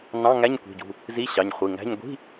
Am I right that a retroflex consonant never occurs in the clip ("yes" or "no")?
yes